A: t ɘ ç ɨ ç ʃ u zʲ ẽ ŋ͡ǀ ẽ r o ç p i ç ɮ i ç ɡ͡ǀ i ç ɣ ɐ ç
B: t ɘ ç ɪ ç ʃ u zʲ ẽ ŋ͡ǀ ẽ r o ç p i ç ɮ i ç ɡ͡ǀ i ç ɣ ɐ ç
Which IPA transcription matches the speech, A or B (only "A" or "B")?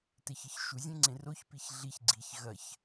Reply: A